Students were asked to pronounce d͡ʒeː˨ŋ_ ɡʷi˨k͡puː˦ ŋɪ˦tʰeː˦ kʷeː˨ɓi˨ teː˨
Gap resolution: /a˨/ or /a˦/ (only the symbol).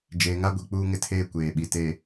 a˦